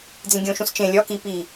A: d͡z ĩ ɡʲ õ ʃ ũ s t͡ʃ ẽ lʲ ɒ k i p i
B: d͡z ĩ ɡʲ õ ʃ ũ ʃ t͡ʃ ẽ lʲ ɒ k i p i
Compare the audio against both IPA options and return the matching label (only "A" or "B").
A